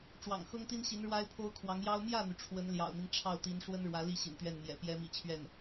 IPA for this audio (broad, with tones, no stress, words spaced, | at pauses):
ʈ͡ʂwɑ̰˨˩ŋxɤ˥ŋt̪i˥nɕi˧˥n ɻwa˥ɪ̯pʰo˥ʊ̯ kʰwɑ˧˥ŋjɑ˥ʊ̯ mjä˥˩n̪y˩ ʈ͡ʂʰwə˧˥nljɑ̰˨˩ʊ̯n̪i˦ŋ ʈ͡ʂʰɑ˥˩ʊ̯t̪i˧˥n ʂwə˥n ɻwä˧˥ li˥˩ ɕḭ˨˩nt̪ɥɛ˥˩n mjɛ̰˨˩pjɛ˥ mḭ˨˩t͡ɕʰɥɛ˥˩n